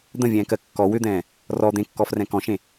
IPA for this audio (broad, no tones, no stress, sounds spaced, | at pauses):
d̪ ə̃ vʲ ɛ̃ː k ɜ kː ɔ w ʏ d̪ ɛ̃ː | r ɔ d̪ ẽ kː ɔː f r ɛ̃ k ɔ̃ ʃ ẽ